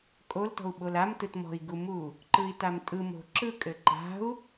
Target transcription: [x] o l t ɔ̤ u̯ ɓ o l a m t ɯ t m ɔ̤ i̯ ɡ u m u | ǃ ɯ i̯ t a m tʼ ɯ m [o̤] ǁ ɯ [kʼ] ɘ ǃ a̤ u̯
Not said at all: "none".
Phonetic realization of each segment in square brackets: kʼ, o̤, kʼ

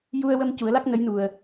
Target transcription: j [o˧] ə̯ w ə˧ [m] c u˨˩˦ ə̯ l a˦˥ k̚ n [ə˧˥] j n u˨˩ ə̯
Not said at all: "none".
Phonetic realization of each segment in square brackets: u˧, m, ə˧˥

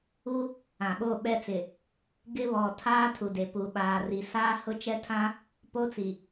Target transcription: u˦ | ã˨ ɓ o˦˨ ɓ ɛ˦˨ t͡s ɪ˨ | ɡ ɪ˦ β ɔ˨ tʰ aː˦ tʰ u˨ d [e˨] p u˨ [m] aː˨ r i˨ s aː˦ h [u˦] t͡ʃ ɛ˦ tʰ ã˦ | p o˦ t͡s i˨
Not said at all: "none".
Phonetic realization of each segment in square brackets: e˨, ɓ, ʊ˦

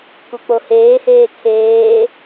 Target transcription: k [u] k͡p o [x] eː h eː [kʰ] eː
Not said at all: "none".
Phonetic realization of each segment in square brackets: u, h, kʰ

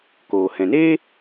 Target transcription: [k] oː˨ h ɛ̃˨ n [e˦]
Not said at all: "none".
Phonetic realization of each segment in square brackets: k, eː˦

